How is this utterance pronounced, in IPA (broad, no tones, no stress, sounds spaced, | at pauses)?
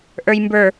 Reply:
ʔ ə˞ j m b ə˞